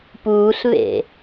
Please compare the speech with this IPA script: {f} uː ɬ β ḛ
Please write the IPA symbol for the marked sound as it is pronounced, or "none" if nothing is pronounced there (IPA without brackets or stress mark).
p